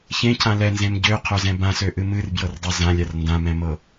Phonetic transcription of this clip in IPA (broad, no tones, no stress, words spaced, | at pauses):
çẽcʰã lɛnzẽm ɟøqʰøzɛ̃ bãsøʔɨ mɨrbjɤrdˤe zãlʲar ndãmɛ̃mɤ